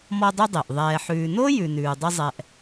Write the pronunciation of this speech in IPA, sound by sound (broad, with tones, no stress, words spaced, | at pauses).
mɔ˦dˤʉ˦ dˤe˩ʔ ðˤɛː˨ħʉː˨no˥ jʉ˨nʉː˨dˤɪ˦ zˤɛ˨ʔ